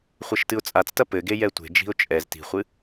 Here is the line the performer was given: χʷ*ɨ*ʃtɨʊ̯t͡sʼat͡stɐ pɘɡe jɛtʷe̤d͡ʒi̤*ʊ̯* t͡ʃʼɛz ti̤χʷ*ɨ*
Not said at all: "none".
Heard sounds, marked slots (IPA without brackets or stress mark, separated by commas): ɛ, ʊ̯, ɨ